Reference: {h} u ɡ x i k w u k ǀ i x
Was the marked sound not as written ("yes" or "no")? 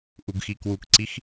yes